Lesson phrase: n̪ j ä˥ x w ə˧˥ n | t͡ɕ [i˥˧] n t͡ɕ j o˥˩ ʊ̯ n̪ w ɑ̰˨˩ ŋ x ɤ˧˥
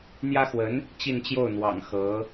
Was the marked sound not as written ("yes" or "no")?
no